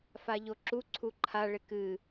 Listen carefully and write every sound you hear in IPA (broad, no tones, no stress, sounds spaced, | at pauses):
f a ʎ o ǁ u ǀʰ u ǃʰ a ɭ e k ɨ